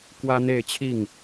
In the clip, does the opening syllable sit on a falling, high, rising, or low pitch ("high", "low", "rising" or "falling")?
high